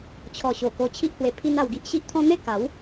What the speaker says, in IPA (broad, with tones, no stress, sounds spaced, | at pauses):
t͡ɕʰ ɔ˨˩ ɕ o˨˩ k o˧ t͡ɕʰ i˦ ʔ h w e˧ pʰ i˦ n a˧ w ɡ i˦ ʔ ɕ i˦ ʔ t̪ʰ ɔ̃˦ n̪ e˥˧ k a˨˦ w